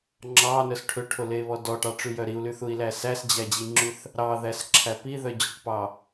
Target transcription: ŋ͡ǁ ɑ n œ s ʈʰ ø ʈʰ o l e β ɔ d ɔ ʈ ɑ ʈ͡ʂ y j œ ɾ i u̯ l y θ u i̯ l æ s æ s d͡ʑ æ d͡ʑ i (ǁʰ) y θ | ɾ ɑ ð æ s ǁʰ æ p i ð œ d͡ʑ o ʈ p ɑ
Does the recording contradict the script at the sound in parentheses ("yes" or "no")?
yes